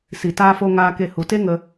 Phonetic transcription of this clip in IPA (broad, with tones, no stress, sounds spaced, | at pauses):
s i˨ t aː˧ f o˧ ŋ aː˧ k e˧ h u˨ t e˦ ŋ ə˧